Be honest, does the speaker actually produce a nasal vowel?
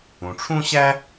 yes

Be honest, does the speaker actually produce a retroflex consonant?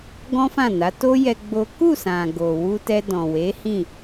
no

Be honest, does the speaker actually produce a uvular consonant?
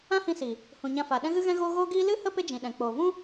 no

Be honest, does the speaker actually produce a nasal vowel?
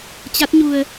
no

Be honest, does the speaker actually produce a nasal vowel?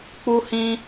yes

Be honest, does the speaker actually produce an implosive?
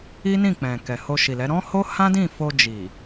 no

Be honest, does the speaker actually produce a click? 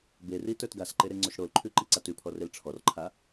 yes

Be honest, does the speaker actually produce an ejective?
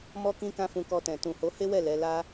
no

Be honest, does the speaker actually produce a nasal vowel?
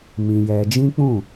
yes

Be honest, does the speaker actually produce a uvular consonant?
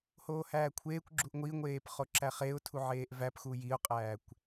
yes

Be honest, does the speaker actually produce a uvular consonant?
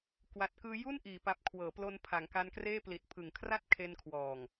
no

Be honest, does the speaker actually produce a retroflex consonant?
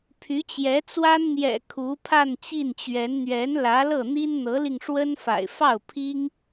yes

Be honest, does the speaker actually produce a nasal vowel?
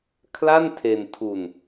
no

